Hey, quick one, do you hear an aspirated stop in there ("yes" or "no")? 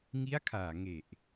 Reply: yes